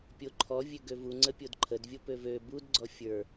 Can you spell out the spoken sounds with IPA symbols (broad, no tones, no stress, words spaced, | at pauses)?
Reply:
pʲoǃʰɔ vʲøɡøvuŋ͡ǀə pʲodǃʰədvʲo pøvø budɡ͡ǀɔ fʲə˞